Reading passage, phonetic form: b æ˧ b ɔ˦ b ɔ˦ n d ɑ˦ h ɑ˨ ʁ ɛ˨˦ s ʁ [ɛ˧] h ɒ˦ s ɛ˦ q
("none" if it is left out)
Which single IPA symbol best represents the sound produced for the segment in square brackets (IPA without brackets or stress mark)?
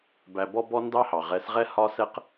ɛ˦